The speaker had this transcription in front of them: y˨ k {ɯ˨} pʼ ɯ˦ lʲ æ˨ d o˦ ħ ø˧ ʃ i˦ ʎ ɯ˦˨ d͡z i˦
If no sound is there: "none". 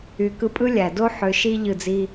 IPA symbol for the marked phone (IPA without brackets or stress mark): ɯ˧